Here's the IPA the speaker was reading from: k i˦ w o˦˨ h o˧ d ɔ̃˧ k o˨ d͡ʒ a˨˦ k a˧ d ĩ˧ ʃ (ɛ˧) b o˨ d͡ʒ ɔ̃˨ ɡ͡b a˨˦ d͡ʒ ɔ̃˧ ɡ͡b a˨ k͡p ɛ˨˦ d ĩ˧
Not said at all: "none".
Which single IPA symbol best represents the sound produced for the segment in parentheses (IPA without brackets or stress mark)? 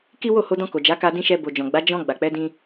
ɛ˧